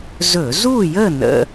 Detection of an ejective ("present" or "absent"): absent